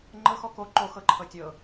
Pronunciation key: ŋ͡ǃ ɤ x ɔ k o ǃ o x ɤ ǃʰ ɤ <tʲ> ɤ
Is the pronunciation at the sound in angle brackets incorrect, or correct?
correct